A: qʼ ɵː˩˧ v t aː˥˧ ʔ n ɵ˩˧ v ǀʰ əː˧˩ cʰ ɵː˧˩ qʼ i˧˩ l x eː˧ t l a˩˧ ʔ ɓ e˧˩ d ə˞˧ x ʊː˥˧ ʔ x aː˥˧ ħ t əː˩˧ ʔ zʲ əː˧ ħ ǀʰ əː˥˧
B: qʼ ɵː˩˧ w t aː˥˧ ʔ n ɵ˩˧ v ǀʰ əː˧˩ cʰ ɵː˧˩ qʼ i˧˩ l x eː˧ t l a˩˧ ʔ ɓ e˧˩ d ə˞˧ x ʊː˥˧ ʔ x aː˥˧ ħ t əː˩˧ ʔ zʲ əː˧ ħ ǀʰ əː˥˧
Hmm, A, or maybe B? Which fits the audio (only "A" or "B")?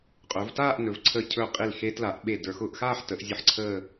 A